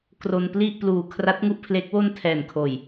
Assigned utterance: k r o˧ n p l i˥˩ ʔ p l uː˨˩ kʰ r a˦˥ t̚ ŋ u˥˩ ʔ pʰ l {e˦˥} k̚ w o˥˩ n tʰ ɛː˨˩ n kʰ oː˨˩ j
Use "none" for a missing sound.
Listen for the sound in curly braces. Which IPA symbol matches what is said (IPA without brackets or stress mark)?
e˦˥